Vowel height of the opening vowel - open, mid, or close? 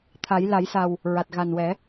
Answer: open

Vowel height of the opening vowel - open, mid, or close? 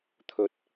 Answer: mid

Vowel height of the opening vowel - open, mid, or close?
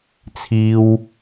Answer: close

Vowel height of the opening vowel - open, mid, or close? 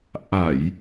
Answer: open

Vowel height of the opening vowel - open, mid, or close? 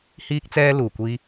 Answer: close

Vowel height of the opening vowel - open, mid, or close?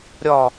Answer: open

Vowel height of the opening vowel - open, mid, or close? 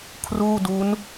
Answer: close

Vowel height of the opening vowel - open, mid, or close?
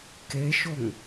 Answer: mid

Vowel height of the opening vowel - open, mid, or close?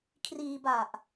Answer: close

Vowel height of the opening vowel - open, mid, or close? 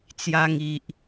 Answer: open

